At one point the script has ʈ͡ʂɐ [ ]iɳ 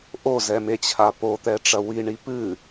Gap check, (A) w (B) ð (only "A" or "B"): A